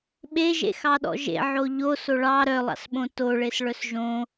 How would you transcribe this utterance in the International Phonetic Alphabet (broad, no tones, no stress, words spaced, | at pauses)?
ɓeʒḛxɑɗɔ̰ ʒḛʕo ʎoso ɭɑ ɾœlˠɑ̰sɓõ toɭesɭœs ʒõ